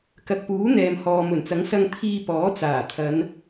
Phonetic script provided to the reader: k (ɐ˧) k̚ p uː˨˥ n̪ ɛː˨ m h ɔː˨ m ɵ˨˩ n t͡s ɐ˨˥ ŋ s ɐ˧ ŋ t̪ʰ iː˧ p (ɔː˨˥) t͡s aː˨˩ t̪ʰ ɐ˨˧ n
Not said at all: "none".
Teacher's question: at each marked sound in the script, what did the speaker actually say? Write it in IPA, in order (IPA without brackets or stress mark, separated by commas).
ɐ˨, ɔː˨˥